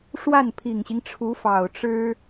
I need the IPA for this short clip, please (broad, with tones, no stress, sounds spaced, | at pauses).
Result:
ʂ w a˥˩ n pʰ i˨˩ ŋ ɕ i˦ ŋ ʈ͡ʂʰ u˧˥ f ɑ˨˩ ʊ̯ ʈ͡ʂ ɻ̩˥